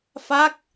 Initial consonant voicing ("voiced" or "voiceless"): voiceless